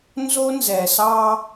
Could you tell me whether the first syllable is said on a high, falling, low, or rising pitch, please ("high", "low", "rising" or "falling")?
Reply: high